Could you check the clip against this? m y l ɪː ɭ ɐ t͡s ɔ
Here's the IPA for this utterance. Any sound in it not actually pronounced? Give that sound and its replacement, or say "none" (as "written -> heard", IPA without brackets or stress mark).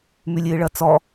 l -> lʲ